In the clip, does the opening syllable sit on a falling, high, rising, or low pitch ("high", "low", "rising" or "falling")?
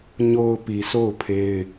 low